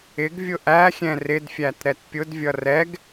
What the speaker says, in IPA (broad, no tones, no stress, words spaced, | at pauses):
ɪɡvʲʊ ʔæxʲɛ̃ rɪdfʲæt ɾɛtpʲʊdvʲʌ rɛɡ